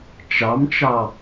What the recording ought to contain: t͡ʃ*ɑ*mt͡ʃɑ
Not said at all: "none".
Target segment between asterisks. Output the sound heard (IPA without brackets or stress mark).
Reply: ɑ